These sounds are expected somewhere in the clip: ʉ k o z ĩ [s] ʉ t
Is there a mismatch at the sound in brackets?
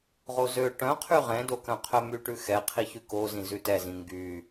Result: yes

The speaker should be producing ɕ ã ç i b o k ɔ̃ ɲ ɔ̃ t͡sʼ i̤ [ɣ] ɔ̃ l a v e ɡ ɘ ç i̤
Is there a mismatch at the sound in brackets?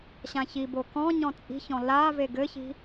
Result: yes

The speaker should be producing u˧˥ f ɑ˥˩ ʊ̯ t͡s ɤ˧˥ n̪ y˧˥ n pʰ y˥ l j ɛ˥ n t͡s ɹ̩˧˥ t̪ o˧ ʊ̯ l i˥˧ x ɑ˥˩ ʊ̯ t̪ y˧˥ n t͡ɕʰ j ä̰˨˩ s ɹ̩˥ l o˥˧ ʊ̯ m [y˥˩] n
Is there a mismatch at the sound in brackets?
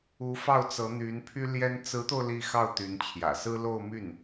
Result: no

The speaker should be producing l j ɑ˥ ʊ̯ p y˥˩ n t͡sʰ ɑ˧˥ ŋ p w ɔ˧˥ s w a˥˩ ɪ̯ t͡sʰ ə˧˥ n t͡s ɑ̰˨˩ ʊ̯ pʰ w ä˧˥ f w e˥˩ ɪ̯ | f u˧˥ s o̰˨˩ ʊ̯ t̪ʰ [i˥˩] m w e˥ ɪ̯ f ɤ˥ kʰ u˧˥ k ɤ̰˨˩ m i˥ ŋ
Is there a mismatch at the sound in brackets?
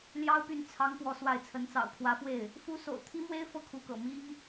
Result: yes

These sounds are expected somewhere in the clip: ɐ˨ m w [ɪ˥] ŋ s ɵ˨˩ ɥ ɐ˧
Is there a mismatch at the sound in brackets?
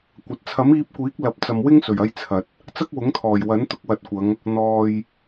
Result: no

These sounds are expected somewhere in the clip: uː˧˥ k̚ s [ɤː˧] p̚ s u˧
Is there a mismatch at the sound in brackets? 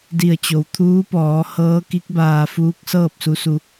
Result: yes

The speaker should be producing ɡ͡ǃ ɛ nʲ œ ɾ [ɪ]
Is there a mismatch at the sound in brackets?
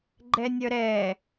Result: yes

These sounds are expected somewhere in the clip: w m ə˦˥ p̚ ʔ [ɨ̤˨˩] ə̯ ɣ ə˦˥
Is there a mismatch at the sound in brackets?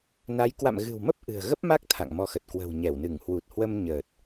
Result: no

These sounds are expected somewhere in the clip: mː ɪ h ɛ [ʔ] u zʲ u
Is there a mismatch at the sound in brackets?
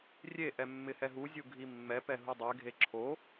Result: yes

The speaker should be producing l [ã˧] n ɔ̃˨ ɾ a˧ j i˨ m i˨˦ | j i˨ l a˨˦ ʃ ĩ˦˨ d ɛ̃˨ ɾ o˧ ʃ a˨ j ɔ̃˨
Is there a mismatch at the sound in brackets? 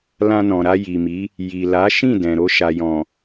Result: no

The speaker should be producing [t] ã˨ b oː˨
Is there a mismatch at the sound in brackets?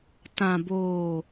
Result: no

